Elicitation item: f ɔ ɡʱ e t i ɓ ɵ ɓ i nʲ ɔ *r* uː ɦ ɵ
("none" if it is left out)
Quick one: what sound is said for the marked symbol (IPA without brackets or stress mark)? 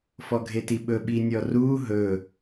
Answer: r